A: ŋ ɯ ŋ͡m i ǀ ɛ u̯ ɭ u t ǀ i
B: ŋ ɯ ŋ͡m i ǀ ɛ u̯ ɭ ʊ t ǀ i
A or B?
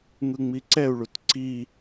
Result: A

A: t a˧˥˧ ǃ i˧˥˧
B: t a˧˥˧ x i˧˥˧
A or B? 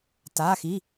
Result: B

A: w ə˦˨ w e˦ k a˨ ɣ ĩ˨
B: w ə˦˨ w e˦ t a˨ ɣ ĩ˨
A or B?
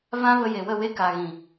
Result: A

